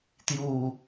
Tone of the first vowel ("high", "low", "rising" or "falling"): low